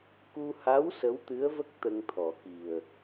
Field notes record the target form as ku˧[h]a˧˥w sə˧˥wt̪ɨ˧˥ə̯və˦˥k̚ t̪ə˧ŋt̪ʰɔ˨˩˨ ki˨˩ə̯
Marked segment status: correct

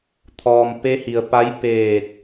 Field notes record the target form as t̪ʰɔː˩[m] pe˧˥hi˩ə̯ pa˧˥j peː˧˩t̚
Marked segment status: correct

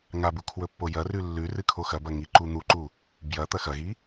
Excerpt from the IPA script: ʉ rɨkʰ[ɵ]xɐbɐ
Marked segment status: incorrect: o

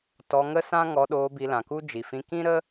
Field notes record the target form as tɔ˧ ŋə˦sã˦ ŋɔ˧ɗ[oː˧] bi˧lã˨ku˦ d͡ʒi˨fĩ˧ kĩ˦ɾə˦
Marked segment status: correct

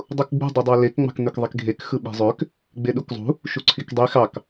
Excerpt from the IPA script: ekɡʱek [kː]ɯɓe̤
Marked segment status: incorrect: x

